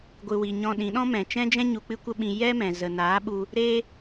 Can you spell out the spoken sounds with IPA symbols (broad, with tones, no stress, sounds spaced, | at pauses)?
ɡʷ ɨ˨ w i˨ ɲ ɔ̃˧ ɗ ĩ˨˦ ɗ ɔ̃˦ m ɛ̃˨ t͡ʃ ɛ̃˦ d͡ʒ ɛ̃˦ ɲ u˧ k͡p ɨ˦ kʷ ə˦ ɓ ĩ˧ j ɛ˦ m ɛ̃˨ z ə˨ n aː˨˦ ɓ u˧ | ɾ e˧